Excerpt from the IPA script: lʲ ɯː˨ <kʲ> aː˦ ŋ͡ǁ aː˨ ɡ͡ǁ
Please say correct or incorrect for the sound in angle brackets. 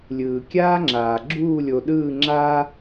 correct